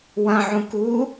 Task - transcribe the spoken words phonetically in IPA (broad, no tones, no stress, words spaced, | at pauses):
wɐ̃ʕũ ku